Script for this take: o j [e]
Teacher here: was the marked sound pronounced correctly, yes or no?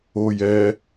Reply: no